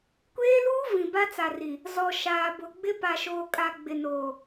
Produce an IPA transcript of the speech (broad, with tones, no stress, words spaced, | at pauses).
kʷeː˦luː˦ vĩ˨ba˦t͡sa˨ri˨ | zɔ˨ ʃaː˨bʊ˨ɡ͡bɪ˦ pa˨ʃoː˨kʼa˨ ɡ͡bɪ˨noː˨